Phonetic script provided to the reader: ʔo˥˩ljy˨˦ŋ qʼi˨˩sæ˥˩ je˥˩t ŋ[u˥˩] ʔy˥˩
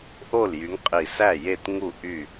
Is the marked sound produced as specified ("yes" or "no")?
yes